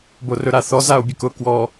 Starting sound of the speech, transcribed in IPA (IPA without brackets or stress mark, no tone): b